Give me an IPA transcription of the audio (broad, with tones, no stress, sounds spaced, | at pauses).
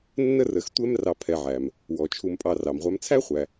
nː ə˥ r ə˨ x tʷ ɛ˦ m r ɑ˨ pʰ ɛ˨ ʕ æ˩ m | w ɔ˩ t͡ʃʰ u˨ m pʼ ɑ˨ r ɑ˩ m ʁʷ æ˨ m t͡sʰ æ˥ χʷ æ˩